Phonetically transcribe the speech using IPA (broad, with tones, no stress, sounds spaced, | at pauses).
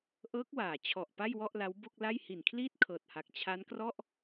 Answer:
ʔ ɤː˦˥ k̚ w aː˨˩ t͡ɕʰ ɔ˨˩ ʔ p a˥˩ j w ɔ˥˩ ʔ l a˦˥ w b o˥˩ k̚ l a˥˩ j h i˨˩ n kʰ l iː˥˩ t̚ kʰ ɤː˨˩ t̚ h a˨˩ k̚ t͡ɕʰ a˦˥ n k r ɔ˥˩ ʔ